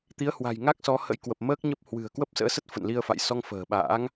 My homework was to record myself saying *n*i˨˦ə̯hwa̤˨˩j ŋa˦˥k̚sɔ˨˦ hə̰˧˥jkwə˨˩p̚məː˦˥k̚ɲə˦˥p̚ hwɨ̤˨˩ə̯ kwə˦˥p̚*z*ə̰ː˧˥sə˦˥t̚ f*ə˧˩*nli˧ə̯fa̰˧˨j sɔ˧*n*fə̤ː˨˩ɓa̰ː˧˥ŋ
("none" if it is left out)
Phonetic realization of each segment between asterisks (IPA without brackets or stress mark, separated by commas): t̪, s, ə̰˧˨, ŋ